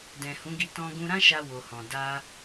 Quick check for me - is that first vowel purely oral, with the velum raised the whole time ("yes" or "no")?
no